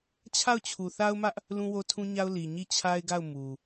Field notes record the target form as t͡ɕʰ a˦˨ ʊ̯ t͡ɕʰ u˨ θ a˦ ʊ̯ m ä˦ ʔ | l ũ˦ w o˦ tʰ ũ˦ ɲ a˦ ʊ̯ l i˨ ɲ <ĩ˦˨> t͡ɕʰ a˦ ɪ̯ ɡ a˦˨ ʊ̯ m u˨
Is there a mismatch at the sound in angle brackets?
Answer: yes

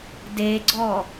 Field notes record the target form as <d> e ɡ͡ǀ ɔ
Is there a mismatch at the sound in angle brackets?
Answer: no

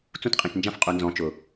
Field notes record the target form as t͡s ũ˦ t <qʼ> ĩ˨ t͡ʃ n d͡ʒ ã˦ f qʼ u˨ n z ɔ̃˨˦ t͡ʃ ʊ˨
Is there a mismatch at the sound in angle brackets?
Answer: no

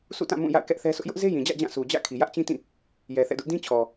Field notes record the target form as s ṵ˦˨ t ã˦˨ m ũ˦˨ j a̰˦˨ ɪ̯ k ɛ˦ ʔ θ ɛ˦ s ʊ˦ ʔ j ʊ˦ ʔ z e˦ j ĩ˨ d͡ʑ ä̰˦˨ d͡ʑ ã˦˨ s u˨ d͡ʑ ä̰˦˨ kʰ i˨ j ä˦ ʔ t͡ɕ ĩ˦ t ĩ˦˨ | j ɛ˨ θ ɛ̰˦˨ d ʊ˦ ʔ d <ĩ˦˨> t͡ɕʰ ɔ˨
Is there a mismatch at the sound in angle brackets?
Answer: yes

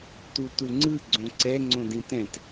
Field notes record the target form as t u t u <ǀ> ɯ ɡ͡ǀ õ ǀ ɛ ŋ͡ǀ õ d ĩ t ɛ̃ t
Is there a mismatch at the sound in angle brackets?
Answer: yes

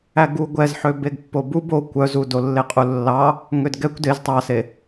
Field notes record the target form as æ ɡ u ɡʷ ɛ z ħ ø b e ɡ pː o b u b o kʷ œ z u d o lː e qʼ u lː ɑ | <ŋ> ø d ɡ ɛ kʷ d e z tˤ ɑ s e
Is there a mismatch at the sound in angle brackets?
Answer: no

